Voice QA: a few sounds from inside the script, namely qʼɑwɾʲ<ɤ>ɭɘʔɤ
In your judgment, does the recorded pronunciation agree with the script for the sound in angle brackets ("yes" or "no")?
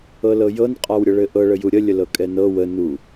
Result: yes